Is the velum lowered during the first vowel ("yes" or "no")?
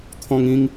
yes